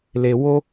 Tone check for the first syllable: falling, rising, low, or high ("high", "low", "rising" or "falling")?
low